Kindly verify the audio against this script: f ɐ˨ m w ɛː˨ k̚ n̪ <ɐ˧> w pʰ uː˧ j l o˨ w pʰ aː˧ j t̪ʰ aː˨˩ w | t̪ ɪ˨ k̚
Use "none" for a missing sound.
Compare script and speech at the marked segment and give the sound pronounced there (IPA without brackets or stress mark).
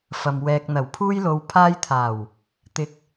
ɐ˨˩